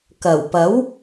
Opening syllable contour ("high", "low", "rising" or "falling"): low